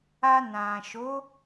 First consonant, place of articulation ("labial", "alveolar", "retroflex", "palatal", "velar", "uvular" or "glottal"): alveolar